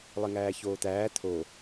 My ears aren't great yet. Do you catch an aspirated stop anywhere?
yes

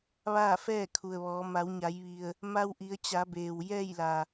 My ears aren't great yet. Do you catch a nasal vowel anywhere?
no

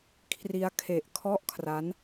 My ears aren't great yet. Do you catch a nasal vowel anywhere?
no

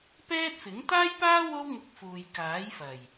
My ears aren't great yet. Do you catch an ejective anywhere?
no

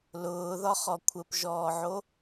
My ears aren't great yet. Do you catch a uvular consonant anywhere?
yes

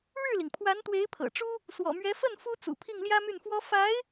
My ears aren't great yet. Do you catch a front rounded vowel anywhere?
yes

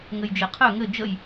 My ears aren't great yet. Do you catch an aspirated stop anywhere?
yes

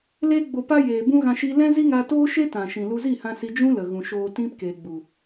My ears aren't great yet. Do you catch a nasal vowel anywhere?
yes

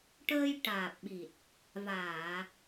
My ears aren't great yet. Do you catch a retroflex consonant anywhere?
yes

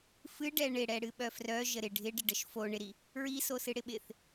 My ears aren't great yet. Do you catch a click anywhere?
no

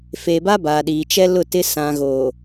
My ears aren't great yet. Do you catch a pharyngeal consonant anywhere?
no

